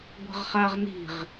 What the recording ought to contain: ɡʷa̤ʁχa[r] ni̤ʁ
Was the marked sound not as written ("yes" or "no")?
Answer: yes